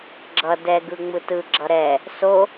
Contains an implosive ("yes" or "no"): no